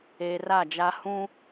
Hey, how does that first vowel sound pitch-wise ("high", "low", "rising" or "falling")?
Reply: low